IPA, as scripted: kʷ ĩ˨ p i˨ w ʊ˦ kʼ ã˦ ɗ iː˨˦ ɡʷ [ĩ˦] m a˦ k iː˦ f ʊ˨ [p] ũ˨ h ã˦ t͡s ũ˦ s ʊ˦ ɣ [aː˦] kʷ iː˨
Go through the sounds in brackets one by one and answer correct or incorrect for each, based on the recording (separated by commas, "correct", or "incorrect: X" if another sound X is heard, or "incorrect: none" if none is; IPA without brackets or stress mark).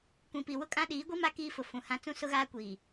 incorrect: i˦, incorrect: f, correct